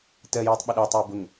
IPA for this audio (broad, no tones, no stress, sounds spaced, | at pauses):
t ɜ j iː tˤ ɓ ɪ ɗ ʊː tˤ iː b ʊ ŋ